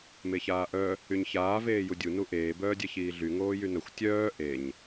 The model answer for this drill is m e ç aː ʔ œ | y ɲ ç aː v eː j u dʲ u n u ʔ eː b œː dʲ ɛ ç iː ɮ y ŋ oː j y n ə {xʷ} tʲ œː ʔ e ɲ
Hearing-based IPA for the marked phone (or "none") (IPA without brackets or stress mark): xʷ